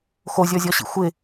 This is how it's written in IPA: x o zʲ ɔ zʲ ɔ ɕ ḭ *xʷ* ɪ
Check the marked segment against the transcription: correct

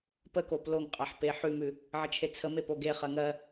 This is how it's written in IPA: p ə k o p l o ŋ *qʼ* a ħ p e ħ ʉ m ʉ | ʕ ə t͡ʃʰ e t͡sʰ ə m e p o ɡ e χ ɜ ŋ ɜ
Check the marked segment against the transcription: correct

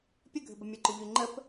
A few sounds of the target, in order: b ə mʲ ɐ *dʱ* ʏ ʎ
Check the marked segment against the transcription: incorrect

